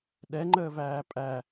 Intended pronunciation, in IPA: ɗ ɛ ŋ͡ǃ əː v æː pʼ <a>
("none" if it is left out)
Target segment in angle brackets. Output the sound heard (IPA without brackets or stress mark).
æ